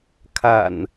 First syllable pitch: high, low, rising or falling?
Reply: low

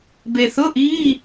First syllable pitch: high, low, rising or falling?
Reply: low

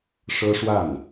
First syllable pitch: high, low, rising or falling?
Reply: high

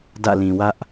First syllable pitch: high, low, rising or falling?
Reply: falling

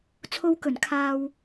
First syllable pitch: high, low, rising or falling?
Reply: high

